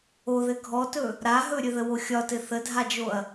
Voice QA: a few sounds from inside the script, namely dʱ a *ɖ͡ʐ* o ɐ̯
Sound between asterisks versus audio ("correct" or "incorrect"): incorrect